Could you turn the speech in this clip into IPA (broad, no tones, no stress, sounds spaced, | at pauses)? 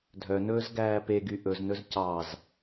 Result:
dʱ œ n ɵː z ɡ æː p e ɡ y ʔ ɵ z n ɵ z c ɑ z